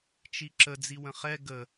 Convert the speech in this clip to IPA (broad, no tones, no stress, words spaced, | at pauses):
t͡ʃiǁə d͡ziwə̃χɛ ɡə